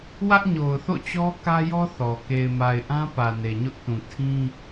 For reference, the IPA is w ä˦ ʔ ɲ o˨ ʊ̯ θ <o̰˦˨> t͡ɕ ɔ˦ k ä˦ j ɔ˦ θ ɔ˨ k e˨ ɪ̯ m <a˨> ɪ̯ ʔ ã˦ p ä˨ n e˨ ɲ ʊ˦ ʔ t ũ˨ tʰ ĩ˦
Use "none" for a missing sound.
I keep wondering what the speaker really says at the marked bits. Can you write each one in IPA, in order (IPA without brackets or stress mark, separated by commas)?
o̰˦˨, a˨